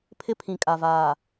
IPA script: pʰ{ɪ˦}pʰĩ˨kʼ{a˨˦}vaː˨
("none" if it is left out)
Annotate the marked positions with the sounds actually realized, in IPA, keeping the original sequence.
ɪ˦, a˨

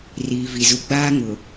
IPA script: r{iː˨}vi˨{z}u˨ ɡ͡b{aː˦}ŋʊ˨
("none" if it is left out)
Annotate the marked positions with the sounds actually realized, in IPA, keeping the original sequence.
iː˨, z, aː˦

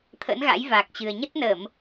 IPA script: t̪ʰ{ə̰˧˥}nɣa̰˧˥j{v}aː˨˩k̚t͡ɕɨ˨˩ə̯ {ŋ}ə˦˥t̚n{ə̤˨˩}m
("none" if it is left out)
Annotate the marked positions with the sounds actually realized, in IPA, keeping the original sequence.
ə̰˧˥, v, ɲ, ə˧˩˨

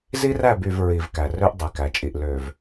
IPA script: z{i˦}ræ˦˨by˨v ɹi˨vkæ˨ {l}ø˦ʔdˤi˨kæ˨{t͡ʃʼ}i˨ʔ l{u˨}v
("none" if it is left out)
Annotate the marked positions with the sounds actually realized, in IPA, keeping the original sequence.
i˦, r, t͡ʃʼ, ø˨

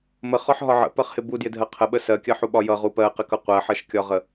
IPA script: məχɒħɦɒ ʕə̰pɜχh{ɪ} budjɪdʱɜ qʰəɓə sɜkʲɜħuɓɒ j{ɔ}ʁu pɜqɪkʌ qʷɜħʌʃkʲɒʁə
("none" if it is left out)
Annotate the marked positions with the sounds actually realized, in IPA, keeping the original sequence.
ɪ, ʌ

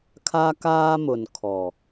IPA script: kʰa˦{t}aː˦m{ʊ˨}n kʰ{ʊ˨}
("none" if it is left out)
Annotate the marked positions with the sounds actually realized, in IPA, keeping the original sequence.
k, ʊ˨, ɔ˨

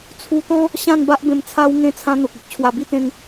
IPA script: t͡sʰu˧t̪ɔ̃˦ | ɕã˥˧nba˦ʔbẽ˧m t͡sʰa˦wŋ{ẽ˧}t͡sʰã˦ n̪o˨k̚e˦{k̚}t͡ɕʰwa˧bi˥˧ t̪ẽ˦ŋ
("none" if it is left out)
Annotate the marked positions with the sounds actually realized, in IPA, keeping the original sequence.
ẽ˥˧, k̚

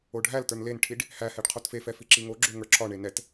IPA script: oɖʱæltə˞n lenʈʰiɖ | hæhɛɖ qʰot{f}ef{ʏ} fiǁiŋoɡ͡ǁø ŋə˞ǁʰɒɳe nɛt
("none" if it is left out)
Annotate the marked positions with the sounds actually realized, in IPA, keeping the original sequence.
f, ɛ

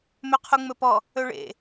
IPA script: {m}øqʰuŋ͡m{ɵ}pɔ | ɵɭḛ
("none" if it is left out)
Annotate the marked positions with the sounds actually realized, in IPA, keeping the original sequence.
m, ɵ

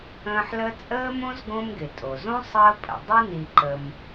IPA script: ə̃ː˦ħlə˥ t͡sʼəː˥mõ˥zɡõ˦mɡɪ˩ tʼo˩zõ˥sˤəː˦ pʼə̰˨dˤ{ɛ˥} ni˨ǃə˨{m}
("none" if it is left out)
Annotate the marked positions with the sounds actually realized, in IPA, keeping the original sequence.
ɪ˥, m

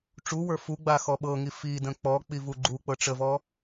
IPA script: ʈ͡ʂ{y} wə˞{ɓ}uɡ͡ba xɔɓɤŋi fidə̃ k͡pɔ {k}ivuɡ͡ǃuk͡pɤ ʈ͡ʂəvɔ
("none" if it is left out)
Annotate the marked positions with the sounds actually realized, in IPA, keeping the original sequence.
u, f, k͡p

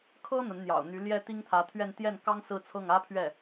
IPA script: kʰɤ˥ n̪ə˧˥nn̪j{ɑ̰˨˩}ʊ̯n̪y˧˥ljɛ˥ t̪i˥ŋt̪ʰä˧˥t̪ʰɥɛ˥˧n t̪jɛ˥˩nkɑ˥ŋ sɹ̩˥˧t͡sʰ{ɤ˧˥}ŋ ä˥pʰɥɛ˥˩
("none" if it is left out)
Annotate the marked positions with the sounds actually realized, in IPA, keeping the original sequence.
ɑ̰˨˩, ɤ˥˩

